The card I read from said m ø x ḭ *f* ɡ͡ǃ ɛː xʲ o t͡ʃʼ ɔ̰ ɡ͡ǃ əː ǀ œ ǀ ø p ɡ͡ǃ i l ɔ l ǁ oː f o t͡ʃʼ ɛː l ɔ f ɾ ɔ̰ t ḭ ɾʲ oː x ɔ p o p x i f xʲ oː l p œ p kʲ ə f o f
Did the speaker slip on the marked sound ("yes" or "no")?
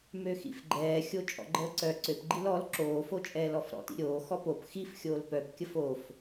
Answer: no